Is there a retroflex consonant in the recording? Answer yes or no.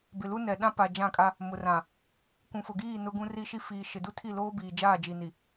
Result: no